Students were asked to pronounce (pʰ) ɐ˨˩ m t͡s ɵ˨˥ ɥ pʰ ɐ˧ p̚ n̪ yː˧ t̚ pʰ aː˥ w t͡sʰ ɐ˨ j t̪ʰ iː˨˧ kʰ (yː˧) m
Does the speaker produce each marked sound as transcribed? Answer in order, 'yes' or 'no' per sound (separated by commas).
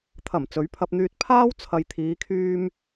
no, yes